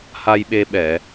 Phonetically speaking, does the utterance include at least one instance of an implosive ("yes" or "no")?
yes